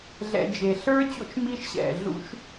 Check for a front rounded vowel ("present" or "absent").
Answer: absent